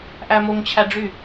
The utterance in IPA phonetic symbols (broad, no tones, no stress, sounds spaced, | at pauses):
ʔ æ m o ŋ t͡ɕʰ æ ɖ͡ʐ y